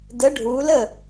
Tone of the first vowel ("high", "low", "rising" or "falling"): rising